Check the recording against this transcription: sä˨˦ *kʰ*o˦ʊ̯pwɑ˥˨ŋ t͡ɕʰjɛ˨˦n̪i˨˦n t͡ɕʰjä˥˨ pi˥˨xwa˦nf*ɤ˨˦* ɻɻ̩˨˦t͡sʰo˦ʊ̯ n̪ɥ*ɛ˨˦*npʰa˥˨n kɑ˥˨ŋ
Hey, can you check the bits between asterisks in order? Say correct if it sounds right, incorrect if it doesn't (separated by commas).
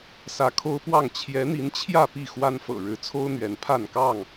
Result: correct, incorrect, correct